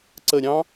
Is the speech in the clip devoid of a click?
no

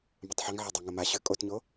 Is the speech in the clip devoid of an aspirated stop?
yes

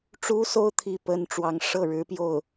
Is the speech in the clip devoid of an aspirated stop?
no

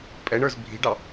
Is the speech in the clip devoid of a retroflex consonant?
no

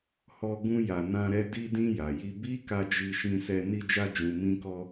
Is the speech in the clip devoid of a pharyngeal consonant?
yes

